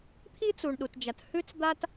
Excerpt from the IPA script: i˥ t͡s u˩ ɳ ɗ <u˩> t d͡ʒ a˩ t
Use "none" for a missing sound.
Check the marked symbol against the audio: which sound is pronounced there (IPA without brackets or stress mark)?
u˩